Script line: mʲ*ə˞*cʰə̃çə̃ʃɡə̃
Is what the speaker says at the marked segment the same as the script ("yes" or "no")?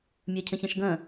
yes